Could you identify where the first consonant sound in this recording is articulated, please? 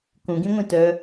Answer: velar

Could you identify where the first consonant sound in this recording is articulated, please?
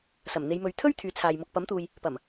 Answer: alveolar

